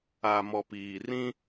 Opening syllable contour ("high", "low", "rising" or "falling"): low